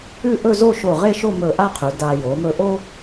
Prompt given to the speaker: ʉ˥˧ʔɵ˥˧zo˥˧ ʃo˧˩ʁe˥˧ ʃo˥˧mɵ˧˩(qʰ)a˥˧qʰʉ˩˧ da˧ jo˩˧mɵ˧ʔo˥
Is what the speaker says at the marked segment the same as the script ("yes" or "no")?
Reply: no